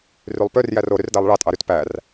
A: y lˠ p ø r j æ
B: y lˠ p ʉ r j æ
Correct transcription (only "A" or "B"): A